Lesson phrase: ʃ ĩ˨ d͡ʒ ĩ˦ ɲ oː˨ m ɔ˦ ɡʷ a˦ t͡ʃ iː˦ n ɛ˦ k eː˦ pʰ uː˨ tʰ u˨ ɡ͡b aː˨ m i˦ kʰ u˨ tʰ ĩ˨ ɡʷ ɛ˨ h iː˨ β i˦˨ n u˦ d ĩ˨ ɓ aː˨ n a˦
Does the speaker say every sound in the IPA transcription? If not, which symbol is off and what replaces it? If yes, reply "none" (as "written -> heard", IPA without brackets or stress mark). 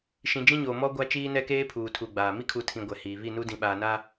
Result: none